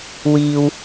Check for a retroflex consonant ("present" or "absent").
absent